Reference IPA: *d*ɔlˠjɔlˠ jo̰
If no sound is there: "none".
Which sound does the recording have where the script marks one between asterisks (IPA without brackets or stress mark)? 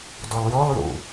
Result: d